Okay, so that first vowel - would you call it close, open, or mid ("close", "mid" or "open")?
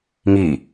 close